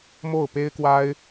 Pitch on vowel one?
falling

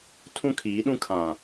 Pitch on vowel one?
high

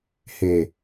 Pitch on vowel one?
low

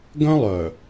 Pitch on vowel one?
high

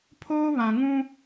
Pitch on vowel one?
high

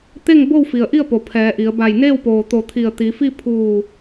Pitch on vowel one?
falling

